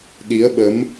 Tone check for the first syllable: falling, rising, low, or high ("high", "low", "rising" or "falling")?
rising